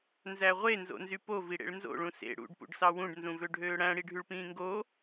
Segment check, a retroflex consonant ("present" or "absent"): present